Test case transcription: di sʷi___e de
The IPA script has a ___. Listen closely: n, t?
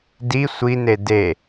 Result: n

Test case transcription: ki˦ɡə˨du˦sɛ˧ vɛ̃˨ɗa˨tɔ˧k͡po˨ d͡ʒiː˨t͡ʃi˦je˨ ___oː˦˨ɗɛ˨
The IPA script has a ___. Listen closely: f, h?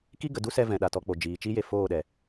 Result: f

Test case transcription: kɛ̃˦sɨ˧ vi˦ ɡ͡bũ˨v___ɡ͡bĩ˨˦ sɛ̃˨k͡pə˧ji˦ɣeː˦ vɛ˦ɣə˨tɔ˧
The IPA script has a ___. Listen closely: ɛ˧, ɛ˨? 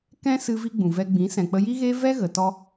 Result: ɛ˧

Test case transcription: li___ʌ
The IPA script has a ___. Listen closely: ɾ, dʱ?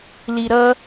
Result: ɾ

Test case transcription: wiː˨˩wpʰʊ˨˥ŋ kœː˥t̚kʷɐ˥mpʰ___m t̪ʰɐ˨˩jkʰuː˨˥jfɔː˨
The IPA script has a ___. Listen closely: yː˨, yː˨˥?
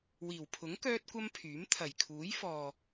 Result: yː˨˥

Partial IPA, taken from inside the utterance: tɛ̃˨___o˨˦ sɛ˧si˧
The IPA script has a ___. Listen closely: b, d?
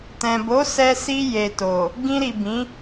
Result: b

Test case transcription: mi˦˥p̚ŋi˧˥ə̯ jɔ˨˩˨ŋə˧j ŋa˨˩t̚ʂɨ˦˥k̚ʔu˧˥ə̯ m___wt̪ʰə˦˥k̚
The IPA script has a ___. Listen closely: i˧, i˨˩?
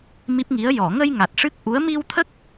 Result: i˧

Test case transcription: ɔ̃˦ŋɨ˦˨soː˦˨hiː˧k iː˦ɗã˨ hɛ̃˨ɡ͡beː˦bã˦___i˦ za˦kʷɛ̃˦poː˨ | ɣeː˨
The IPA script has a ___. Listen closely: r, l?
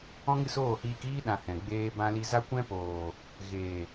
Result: l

